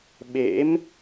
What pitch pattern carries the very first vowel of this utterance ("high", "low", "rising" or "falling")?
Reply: rising